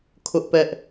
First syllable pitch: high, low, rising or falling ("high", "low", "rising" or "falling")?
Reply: high